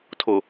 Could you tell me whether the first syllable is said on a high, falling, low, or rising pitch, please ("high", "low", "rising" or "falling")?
low